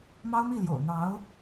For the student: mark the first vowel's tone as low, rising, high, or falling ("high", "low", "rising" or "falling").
high